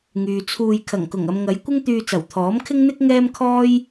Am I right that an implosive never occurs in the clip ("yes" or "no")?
yes